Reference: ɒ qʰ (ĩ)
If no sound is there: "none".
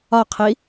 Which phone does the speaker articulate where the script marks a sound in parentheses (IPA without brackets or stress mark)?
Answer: i